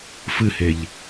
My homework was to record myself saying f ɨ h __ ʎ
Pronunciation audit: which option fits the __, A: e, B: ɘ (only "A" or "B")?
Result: A